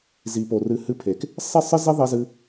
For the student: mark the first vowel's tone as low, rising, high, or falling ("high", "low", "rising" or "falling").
low